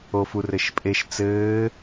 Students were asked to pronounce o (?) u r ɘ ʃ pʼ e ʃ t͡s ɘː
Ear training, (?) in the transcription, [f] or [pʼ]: f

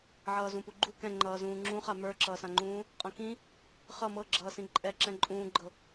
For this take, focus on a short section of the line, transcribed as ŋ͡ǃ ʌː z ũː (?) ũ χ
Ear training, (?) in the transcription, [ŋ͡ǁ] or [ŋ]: ŋ͡ǁ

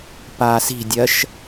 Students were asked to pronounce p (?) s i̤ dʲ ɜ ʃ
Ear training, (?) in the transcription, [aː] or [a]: aː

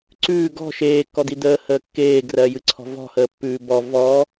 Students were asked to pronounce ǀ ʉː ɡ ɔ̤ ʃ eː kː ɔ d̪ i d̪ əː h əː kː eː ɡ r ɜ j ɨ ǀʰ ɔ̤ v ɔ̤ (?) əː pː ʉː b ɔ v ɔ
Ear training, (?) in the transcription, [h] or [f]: h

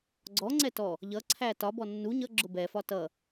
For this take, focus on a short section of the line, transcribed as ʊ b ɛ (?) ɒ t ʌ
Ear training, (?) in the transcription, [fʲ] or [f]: f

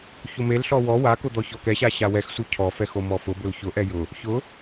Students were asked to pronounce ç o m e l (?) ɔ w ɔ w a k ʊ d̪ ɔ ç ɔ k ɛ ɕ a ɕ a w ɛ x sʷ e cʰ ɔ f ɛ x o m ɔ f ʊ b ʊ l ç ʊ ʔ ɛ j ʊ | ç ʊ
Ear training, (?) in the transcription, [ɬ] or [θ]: ɬ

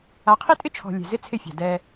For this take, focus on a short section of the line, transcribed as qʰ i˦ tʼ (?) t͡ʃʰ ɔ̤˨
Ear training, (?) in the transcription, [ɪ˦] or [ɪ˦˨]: ɪ˦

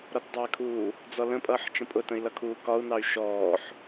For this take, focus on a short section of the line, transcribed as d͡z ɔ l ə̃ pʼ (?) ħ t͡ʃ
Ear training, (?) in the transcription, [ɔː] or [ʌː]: ʌː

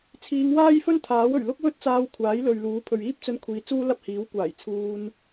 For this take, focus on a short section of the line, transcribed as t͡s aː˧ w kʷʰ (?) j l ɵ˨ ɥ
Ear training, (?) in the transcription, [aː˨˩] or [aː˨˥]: aː˨˥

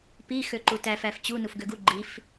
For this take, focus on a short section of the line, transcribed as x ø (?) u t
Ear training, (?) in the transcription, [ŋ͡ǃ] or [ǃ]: ǃ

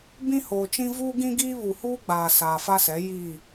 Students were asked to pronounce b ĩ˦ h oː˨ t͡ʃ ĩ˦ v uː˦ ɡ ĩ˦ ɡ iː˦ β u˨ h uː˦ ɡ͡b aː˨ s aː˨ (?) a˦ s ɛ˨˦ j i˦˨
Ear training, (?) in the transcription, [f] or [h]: f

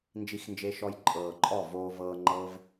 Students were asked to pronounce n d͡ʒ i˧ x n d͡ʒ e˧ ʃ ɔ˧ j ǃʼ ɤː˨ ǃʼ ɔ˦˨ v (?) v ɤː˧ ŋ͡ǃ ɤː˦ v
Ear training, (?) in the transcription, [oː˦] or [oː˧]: oː˧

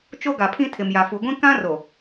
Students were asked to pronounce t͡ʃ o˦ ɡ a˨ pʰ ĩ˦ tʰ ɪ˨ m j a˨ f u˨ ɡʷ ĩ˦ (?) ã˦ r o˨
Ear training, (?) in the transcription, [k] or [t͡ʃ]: k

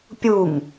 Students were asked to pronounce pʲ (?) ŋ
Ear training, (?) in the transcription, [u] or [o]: u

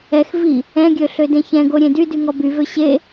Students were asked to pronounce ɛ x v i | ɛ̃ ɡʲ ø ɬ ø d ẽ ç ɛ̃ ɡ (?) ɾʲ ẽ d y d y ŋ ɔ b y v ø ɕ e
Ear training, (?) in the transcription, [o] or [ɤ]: o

